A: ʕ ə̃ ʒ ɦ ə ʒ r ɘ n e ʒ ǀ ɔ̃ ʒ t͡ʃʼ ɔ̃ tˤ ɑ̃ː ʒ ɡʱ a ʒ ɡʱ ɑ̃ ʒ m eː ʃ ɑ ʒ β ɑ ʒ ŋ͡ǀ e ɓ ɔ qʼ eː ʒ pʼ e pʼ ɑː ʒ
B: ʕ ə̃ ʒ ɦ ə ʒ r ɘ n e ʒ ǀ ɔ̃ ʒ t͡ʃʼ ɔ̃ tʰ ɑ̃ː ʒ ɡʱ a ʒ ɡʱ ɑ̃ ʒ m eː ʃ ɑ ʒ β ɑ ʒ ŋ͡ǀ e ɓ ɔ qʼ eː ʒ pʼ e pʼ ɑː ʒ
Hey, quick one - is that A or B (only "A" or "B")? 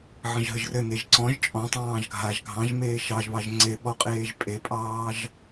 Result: A